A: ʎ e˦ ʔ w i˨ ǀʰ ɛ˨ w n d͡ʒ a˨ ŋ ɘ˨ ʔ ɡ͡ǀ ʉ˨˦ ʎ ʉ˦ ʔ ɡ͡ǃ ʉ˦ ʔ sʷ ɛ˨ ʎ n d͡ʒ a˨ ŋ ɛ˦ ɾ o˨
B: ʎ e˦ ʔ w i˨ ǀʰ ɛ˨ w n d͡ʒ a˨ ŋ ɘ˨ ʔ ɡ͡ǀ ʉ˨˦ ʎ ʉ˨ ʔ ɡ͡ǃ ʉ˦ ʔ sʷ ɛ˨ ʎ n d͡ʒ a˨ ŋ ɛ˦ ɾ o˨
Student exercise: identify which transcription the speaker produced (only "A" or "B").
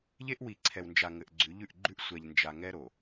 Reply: B